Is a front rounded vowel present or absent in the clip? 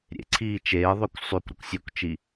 present